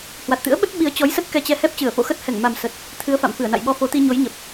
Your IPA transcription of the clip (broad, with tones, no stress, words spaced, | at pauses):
hwa˨˩t̚t̪ɨ̰˧˥ə̯ɓə˦˥t̚ ɓi˨˦ə̯t͡ɕɔ˨˦jsə˦˥t̚ kɛ˧t͡ɕɛ˧ hɛ˦˥p̚t͡ɕɨ˧˩ə̯fo̰˧˨xə˦˥t̚ hɛ˧˩ŋma˨˩m sə˨˩t̚ | t̪ʰɨ˨˦ə̯fa̰˧˨m fɨ˧˩ə̯na̰˧˨jɓɔ˧fo˨˦ t̪i˧ɲo˨˦jɲə˨˩p̚